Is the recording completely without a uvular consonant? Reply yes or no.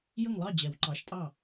yes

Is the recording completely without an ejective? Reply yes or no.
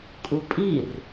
no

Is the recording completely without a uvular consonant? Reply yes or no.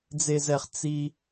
no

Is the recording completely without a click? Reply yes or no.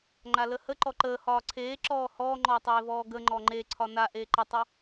no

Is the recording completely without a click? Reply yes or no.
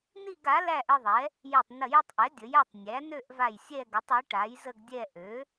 yes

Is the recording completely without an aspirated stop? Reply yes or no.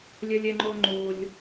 yes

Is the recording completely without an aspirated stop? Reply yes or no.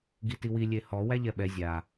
yes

